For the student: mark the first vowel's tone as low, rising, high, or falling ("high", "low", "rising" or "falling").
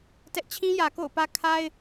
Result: high